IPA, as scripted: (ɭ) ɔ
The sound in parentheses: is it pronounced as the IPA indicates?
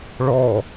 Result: yes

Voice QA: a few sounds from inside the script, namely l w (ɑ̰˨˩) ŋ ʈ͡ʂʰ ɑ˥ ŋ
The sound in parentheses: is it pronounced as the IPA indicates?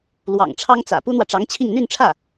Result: yes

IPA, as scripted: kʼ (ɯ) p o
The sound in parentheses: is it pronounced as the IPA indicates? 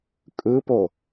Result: yes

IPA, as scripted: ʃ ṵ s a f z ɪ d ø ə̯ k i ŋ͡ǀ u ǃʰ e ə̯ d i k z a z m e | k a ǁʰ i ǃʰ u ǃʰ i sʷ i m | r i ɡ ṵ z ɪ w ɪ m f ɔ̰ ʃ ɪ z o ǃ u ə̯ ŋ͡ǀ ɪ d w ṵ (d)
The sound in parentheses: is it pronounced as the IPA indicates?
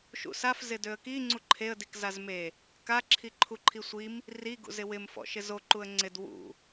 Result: no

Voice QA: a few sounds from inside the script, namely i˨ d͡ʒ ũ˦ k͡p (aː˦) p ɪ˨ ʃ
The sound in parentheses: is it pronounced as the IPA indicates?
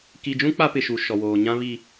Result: no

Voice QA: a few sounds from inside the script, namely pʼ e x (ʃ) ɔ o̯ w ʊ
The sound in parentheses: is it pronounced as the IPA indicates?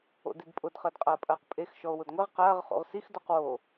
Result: yes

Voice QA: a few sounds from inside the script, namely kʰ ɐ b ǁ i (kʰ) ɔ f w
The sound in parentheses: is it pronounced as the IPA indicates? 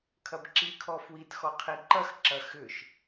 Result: yes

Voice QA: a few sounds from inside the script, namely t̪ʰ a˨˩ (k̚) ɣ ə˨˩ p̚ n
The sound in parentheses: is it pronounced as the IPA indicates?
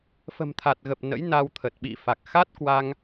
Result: no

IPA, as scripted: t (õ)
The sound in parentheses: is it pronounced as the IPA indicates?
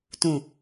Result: no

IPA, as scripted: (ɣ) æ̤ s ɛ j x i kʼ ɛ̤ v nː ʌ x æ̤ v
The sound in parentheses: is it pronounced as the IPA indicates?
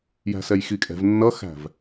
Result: no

